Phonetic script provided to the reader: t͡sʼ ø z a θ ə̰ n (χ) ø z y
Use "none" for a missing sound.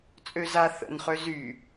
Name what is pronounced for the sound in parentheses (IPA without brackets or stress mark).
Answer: χ